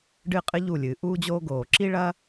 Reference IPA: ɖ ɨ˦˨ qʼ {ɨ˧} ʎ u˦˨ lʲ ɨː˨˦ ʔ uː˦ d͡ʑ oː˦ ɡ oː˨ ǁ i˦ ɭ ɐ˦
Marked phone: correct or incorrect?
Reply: incorrect